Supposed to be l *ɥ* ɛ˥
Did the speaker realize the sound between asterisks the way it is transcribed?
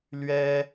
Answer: yes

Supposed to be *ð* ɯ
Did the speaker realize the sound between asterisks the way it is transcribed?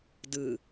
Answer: no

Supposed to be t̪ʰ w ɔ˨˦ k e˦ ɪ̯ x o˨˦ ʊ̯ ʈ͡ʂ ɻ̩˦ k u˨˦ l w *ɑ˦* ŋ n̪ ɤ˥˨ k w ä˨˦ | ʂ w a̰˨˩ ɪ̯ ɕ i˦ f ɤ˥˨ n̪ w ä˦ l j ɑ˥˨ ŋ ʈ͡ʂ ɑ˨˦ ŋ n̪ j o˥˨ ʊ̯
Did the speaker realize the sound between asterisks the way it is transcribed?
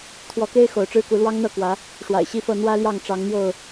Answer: yes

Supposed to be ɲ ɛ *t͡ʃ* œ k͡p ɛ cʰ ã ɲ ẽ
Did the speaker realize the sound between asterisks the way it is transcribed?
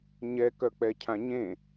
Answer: no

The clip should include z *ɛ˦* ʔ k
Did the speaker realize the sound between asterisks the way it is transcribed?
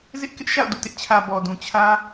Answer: no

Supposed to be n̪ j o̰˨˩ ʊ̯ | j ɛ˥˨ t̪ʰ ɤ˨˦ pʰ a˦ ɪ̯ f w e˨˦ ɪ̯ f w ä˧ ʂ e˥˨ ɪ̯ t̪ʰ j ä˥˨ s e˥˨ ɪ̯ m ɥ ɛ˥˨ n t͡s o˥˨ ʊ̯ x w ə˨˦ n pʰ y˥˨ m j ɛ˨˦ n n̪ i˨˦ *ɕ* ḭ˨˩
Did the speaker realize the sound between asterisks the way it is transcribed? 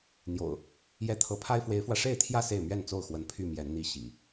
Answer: yes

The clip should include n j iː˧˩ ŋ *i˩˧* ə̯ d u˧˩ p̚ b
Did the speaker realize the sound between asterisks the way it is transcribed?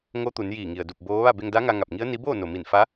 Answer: no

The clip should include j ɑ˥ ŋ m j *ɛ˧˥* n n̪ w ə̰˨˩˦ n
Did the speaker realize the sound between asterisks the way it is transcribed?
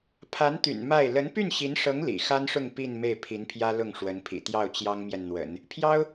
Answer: no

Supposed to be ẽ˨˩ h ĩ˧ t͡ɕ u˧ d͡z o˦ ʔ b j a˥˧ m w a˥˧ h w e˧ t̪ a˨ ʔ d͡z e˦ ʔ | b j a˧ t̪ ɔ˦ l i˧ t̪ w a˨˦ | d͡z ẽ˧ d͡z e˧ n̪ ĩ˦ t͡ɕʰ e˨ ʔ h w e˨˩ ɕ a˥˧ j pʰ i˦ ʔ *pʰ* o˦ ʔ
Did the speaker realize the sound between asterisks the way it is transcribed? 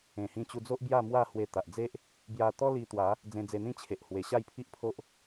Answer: yes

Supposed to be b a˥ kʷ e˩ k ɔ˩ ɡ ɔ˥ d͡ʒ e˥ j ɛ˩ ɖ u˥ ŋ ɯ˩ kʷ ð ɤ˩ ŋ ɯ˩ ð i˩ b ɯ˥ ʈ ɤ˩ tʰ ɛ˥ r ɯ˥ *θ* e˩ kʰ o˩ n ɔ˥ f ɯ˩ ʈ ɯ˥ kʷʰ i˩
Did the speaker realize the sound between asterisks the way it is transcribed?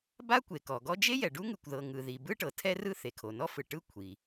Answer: yes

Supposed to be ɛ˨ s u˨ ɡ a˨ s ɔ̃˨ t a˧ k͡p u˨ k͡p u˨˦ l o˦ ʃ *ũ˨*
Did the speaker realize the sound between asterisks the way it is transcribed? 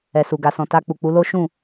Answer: no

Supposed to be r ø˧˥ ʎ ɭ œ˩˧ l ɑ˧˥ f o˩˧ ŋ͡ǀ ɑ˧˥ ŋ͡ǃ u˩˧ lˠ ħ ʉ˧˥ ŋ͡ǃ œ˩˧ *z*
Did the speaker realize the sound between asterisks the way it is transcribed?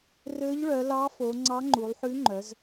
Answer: yes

